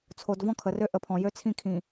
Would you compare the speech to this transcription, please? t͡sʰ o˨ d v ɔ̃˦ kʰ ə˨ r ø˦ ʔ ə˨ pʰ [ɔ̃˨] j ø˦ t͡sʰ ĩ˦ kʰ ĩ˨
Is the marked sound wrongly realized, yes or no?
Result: no